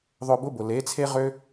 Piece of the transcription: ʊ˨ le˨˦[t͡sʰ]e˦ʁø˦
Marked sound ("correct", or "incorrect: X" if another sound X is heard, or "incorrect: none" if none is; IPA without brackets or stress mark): correct